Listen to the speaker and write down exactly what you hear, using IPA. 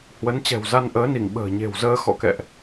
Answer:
h w ə˨˦ n t͡ɕ ɛ̤˨˩ w z a˧ n ʔ əː˨˦ n i˧˩ ŋ ɓ ə̤ː˨˩ ɲ e̤˨˩ w z əː˧ x ɔ̰˧˨ k ɛ̰˧˨ ʔ

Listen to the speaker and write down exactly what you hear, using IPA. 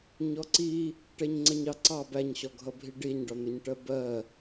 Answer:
ɲ ɔ ǀ i | ʈ ɛ ɲ ŋ͡ǀ ə ɲ ɑ ǀ ɑ b æ ɲ ɕ ɔ ɡʱ ʌ bʱ i ɖ i ɲ ɖ ɒ n̪ ʊ ɲ ʈ ɜ b ɜ

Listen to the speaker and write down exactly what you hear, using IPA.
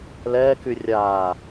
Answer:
l ɛː k y rʲ aː

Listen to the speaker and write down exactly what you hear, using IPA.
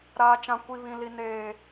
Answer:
ɾ aː˦ t͡ʃ ã˦ kʷ i˦ β ĩ˦ l i˦ n eː˦

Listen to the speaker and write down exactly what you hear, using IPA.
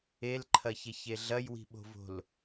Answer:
e l ǃʰ ɐ ç e ç e ɮ ɐ j w i̤ ɓ o̤ v o̤ l

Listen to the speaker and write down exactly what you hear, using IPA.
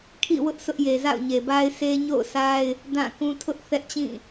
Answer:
kʰ ḭ˦˨ w ʊ˦ ʔ s ʊ˦ ʔ j e˨ z a̰˦˨ ʊ̯ ɲ e˨ b a˦ ɪ̯ s e˦ ɲ o̰˦˨ ʊ̯ sʰ a˦ ɪ̯ | d ã˦˨ k ũ˦ tʰ ʊ˦ ʔ θ ɛ˦ ʔ t͡ɕ ĩ˦˨

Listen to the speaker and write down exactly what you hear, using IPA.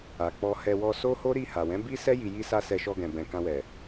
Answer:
a˨ k͡p ɔ˧ h ɛ˧ w ɔ˧ s o˦ h o˦ ɾ i˦˨ h a˨ w ɛ̃˨˦ b i˦ s ɛ˦ j i˧ j i˦ s a˦ s ɛ˧ ʃ ɔ˧ ɡ ɛ̃˨ b ɛ̃˨ k ã˧ w ɛ˨

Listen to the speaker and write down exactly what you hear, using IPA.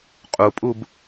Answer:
qʼ u pʼ u b

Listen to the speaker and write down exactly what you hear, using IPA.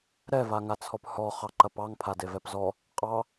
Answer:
ɾ ɛ v a ŋ a t͡sʰ ɔ p h ɔ χ ɑ ǃ ɐ p ɑ ŋ pʰ a d e v ɛ p z ɔ | qʼ ɑ

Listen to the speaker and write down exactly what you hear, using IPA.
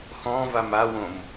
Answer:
x ɔ̃ v a m a w õ m

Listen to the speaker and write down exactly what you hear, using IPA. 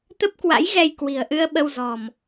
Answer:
t̪ ə˦˥ p̚ k w a̰˧˥ j ɣ ɛ˧ j k w i̤˨˩ ə̯ ʔ ɨ˧ ə̯ ɓ ə˧ w z ɔ̤˨˩ m

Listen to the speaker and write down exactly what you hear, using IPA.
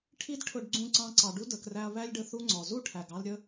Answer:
ʈʰ i˦ d ʈʰ ʊ˧ ɖ ɡ͡ǀ ũ˧ ǀ ɑ̃˧ ǀ ɑ˨ ɖ u˦ d ə˨ k r æ˧ ɐ̯ β æ˦ lʲ ɖ ə˧ θ u˦ ŋ͡ǀ ɔ˨ z u˦˨ ʈʰ æ˨ ɡ ɑ˧ l ɾʲ ə˧

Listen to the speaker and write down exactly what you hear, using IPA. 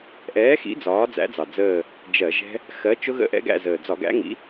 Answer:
ʔ ɛː˨˥ x ḭ˨˥ d͡z ɒː˨˥ d͡z æ̰˨˥ d͡z ɑ˨˩ d͡z əː˦˨ | d͡ʒ ɜ˧˩˧ ʒ ɛ̤˦˥ | x ɜ˨˥ t͡ʃ ʊ˦˥ ɣ ə̰˦˨ ʔ ɛ̰˦˥ ɡ æ̰˦˨ z əː˨˩ d͡z ɒ˧˩˧ ɡ æ̰˨˥ ŋ ḭ˨˥

